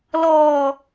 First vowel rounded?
yes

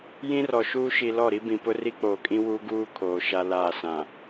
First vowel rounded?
no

